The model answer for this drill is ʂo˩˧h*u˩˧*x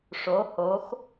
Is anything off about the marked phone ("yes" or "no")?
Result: yes